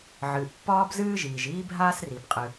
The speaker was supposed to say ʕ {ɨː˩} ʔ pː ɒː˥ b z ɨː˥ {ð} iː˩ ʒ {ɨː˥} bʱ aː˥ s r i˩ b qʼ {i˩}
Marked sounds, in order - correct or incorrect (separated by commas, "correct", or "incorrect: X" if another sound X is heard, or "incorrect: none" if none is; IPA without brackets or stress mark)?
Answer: correct, incorrect: ʒ, incorrect: iː˥, incorrect: ɨ˩